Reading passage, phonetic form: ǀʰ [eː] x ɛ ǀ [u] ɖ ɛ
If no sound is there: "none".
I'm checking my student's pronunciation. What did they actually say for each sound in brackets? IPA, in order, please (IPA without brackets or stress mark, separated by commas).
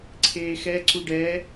eː, u